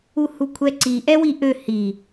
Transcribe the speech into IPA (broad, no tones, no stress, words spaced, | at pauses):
uhukʷʰɛǀi ʔɛwiʔø hi